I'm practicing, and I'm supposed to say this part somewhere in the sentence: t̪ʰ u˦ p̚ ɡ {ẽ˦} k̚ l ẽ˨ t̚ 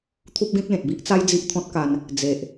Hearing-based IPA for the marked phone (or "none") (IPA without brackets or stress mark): ẽ˦